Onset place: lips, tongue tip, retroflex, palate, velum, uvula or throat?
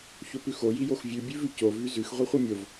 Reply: palate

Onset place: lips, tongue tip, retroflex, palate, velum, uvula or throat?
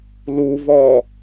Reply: tongue tip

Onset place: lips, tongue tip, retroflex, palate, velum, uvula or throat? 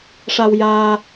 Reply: retroflex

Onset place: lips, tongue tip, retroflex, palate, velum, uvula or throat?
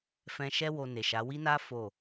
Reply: lips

